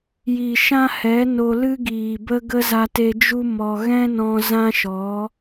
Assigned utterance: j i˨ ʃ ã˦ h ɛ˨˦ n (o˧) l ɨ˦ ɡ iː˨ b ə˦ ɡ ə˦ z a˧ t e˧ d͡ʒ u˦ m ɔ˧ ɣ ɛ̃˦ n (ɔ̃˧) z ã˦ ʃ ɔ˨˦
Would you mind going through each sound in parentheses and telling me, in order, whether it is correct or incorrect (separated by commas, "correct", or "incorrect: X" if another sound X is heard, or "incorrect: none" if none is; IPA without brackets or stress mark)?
correct, correct